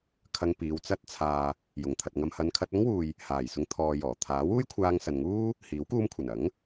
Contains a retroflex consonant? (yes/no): no